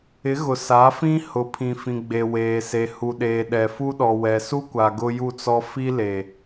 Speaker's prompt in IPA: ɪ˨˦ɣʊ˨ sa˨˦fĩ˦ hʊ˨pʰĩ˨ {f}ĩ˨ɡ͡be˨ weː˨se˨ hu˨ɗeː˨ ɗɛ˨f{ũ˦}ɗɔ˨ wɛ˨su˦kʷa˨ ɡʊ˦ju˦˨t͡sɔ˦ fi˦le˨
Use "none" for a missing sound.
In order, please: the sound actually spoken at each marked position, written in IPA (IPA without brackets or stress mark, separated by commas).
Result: f, u˦